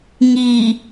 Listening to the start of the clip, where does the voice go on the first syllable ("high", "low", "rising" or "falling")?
low